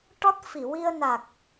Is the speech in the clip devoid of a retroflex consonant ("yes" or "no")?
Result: no